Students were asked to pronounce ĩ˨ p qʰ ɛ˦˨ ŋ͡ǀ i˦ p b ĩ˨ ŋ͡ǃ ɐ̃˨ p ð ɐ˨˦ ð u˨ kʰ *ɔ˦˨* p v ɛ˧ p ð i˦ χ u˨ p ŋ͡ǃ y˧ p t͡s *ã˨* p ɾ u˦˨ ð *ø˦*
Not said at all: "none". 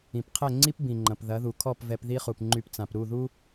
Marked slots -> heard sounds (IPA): ɔ˦˨, ã˨, u˦

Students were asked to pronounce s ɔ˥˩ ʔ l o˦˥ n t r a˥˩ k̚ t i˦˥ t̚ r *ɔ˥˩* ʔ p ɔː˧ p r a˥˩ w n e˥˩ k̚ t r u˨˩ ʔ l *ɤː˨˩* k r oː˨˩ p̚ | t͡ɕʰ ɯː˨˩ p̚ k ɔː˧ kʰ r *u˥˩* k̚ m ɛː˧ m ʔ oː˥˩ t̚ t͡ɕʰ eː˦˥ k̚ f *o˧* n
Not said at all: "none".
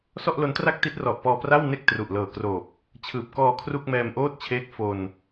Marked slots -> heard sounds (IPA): ɔ˨˩, ɤː˨˩, u˥˩, o˧

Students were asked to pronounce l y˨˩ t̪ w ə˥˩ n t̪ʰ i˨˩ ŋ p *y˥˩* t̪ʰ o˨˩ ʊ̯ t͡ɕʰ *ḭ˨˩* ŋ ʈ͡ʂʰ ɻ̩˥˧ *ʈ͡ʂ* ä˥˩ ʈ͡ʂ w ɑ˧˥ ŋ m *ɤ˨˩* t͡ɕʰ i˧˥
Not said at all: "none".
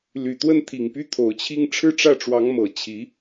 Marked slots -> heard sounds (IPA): y˥˩, i˥˧, ʈ͡ʂ, ɤ˨˩

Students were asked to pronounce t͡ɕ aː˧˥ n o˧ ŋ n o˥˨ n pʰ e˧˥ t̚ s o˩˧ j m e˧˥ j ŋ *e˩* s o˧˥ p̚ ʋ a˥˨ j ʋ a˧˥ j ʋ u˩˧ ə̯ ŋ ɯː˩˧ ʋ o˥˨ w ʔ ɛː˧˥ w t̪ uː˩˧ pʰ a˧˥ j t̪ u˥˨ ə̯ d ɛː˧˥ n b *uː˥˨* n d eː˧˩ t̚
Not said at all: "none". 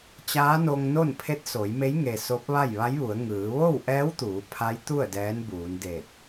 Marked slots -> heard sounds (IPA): e˩, uː˩˧

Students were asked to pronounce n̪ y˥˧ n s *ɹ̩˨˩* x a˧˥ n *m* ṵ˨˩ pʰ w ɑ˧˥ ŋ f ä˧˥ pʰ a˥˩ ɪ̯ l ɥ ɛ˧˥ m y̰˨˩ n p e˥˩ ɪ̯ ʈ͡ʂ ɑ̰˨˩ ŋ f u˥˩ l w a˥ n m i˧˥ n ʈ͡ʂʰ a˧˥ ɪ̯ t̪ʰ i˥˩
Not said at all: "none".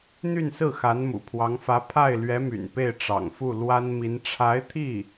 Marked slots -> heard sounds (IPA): ɹ̩˥˩, m

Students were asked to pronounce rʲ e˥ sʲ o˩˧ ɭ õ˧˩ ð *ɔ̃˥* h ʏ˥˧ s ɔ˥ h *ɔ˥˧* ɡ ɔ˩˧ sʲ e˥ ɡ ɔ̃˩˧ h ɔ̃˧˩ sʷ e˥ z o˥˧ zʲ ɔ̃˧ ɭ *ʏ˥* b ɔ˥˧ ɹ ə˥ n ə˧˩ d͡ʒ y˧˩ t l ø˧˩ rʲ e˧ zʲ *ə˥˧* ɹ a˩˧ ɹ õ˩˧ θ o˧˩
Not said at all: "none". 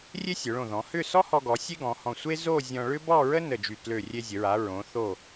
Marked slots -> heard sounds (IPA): ɔ̃˩˧, ɔ˧, ʏ˥, ə˩˧

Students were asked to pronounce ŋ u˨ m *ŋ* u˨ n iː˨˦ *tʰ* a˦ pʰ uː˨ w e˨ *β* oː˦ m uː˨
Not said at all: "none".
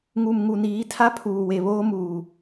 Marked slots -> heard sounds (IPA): ŋ, tʰ, β

